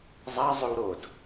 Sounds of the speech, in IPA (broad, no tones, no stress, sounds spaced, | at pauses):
zˤ a zˤ ʉ w ɾ o d